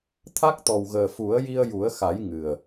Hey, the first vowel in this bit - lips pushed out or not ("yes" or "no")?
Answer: no